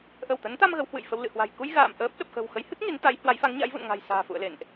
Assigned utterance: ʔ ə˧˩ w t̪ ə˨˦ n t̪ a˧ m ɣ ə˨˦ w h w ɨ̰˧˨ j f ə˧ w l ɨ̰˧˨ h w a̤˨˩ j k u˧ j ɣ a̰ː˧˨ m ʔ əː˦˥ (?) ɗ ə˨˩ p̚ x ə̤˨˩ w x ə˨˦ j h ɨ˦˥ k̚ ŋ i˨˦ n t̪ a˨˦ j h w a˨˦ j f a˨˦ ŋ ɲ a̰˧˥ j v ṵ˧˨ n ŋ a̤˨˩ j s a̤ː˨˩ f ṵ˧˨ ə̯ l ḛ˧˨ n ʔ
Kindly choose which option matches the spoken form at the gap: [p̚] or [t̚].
p̚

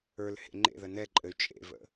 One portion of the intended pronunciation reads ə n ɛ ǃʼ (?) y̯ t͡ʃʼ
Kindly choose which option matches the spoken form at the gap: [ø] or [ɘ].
ɘ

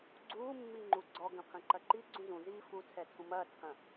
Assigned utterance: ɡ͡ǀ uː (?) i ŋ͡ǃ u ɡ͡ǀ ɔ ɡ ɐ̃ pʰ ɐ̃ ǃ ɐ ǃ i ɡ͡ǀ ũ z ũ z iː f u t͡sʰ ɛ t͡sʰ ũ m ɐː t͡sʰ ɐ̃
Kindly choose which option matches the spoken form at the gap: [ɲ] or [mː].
mː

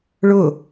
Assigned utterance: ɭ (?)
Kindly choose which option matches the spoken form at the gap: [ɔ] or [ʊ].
ʊ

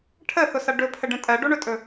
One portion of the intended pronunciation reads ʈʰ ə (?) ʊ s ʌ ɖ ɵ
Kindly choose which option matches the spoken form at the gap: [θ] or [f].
θ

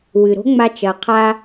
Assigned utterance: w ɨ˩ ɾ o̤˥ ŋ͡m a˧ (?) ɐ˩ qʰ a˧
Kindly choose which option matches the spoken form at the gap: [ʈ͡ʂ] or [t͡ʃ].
t͡ʃ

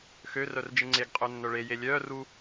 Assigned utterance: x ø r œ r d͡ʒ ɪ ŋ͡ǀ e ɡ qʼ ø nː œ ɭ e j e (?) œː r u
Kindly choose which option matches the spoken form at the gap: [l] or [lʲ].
lʲ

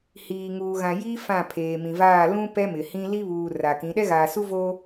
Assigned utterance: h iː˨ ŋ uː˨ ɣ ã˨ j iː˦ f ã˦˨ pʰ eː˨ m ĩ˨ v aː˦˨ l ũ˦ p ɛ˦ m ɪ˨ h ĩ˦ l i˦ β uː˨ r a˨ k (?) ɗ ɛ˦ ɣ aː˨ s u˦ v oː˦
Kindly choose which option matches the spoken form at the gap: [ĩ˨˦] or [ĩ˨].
ĩ˨˦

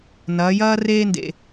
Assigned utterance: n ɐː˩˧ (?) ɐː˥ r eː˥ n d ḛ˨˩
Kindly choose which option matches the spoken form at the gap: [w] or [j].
j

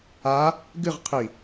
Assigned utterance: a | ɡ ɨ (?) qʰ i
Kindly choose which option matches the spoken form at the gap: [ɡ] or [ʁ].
ʁ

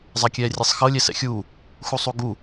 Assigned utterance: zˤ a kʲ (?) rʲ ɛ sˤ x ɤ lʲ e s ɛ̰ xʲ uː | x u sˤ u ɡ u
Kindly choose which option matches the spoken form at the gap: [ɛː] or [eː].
ɛː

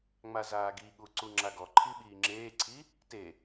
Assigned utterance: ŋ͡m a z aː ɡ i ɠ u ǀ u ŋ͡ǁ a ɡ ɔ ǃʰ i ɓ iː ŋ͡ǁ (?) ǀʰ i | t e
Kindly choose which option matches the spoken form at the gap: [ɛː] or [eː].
eː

